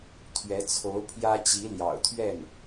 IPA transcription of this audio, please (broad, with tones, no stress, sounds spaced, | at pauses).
t̪ʰ ɥ ɛ˧˥ t͡sʰ o˧˥ ʊ̯ pʰ j ä˥ t͡ɕ i˧˥ l j ɑ̰˨˩ ʊ̯ t̪ʰ ɥ ɛ˥˩ n